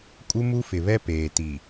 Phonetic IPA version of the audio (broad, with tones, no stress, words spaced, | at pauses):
kʼu˦mu˦fɪ˨βɛ˦ peː˨ti˨